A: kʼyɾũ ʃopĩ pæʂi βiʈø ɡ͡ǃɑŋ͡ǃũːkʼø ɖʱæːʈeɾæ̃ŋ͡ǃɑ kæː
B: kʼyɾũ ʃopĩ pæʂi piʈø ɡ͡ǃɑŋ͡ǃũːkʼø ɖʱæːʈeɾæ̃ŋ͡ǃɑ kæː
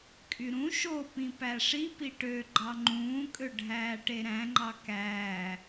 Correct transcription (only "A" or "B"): B